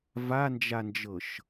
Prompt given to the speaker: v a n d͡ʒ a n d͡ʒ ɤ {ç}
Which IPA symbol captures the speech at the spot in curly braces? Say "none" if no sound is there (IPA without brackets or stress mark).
ʃ